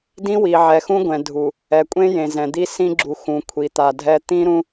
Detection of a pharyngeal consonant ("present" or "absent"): present